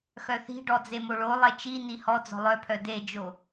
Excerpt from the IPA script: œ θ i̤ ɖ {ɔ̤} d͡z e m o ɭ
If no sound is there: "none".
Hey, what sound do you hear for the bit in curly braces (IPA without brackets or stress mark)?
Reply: ɔ